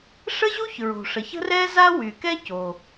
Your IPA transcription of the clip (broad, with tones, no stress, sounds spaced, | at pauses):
ʂ ə˥ ʑ u˥ ç ɹ o̤˩ ʂ ə˩ ç ə̤˥ r ɛ˥ z a˥ w y˩ k ɛ˥ c o˩